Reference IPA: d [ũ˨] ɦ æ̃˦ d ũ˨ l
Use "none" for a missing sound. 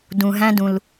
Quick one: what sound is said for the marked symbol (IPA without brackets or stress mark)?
ũ˨